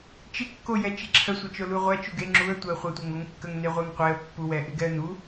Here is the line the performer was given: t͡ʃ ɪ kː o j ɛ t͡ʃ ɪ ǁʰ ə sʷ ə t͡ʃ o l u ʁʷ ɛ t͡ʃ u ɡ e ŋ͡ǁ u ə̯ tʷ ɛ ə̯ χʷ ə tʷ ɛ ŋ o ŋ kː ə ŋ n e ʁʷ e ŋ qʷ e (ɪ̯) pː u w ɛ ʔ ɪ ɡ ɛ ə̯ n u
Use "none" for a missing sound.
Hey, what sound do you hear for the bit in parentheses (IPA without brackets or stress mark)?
ə̯